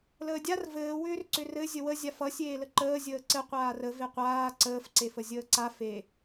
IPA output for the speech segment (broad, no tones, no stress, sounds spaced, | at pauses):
l əː dʲ a r v ɘː w ʏː r ǀ ʏ r ɘ zʲ ə w ə zʲ a f ʌ sʲ eː l ə ǃ əː zʲ əː ǀ ɘ qʷ aː r ə v e qʷ aː ǀ əː f ǀ e f ə zʲ əː ǀ a f e